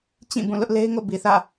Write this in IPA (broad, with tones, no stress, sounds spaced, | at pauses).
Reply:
t͡ɕ ĩ˦˨ b ũ˦˨ l ʊ˦ ʔ l e˦ ɪ̯ ŋ o̰˦˨ b i˨ θ ä̰˦˨